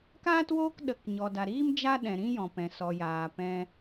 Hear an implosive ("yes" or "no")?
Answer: yes